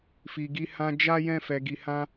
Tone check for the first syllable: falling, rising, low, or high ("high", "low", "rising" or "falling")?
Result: low